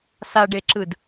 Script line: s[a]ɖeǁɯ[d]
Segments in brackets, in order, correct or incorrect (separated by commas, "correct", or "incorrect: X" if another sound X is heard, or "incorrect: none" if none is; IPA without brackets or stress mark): correct, correct